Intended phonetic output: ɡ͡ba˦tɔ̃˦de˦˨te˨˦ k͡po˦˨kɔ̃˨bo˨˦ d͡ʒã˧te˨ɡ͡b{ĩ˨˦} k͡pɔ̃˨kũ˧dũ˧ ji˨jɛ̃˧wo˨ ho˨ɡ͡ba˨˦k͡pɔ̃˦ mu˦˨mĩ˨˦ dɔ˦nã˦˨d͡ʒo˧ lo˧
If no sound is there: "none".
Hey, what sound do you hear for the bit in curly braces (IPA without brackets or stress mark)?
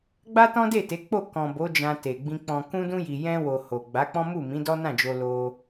ĩ˧